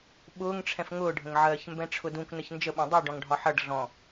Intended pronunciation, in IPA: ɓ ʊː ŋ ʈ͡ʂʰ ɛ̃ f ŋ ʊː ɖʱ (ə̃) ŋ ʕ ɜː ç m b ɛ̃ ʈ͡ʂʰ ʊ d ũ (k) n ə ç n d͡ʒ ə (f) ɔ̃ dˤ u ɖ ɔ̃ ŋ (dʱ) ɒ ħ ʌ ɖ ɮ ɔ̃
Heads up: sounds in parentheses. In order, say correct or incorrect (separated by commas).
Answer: correct, correct, incorrect, incorrect